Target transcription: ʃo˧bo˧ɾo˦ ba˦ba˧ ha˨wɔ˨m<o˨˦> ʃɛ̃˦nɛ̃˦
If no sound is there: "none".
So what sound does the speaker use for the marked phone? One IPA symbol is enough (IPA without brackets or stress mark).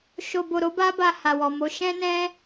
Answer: o˨˦